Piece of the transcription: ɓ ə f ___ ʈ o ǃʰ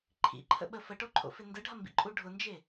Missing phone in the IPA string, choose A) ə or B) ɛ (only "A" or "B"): A